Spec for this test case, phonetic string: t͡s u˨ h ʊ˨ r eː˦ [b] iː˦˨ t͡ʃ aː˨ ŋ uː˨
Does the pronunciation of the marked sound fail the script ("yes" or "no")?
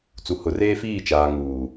yes